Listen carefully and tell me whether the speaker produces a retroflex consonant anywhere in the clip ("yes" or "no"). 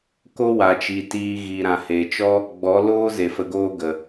no